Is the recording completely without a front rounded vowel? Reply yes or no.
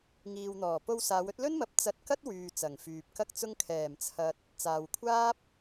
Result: no